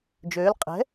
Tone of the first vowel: rising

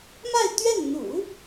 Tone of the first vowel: falling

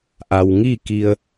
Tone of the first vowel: low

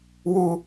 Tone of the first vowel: high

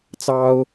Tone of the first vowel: high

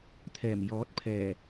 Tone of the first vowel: low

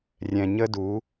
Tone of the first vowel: low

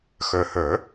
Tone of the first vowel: low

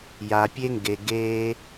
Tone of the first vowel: low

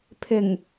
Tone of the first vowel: low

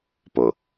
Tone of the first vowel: low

